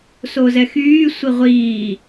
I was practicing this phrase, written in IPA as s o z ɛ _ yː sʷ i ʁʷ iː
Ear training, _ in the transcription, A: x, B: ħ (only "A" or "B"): A